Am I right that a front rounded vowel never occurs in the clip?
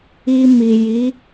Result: yes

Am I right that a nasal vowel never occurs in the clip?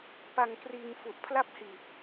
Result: yes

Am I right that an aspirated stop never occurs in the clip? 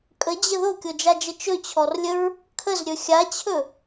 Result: no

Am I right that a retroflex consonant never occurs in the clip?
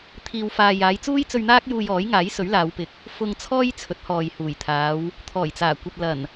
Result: yes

